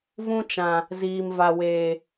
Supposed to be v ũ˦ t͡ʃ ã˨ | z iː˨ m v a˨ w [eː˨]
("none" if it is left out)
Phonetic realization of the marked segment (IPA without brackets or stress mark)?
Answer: eː˨